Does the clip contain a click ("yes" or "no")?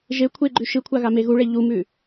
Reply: yes